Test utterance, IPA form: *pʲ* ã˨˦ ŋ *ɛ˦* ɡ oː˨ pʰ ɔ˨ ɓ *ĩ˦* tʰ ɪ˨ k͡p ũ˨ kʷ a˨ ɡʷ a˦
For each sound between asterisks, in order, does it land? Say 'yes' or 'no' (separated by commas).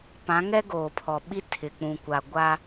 no, yes, no